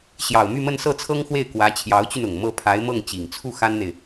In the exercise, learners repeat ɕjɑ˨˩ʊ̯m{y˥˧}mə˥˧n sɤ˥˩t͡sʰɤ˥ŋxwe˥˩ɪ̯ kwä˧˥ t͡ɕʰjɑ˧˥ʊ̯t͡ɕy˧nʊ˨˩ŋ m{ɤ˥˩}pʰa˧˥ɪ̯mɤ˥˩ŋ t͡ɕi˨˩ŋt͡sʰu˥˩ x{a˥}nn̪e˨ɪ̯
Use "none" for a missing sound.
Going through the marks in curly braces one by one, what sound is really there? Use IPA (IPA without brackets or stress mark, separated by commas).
y˥˧, ɤ˥˩, a˥